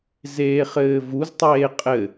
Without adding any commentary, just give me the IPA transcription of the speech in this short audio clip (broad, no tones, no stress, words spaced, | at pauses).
zeːχɘːvuztˤeː qʼɘ